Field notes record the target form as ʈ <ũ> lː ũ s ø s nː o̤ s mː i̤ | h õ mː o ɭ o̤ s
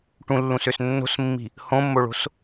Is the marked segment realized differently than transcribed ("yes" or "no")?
no